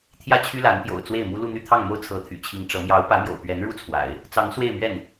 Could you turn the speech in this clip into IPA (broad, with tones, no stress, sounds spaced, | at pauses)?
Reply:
t̪ʰ j ä˥˩ t͡ɕʰ y˥ l a˧˥ n p j o̰˨˩ ʊ̯ t͡s w e˥˩ ɪ̯ m u˥ l u˥˧ n̪ y˥˧ t̪ʰ ɑ˥˩ ŋ m o˥ ʊ̯ t͡sʰ ɤ˧˥ t̪ʰ y̰˨˩ t͡ɕʰ i˧˥ ŋ ʈ͡ʂ ɤ˧˥ m j ɑ˧˥ ʊ̯ p ä˧˥ m j o̰˨˩ ʊ̯ p ɥ ɛ˧˥ n ɻ u˥ t͡sʰ w a̰˨˩˦ ɪ̯ | t͡s ɑ˧˥ ŋ s w e˥˧ ɪ̯ m ɥ ɛ˥˩ n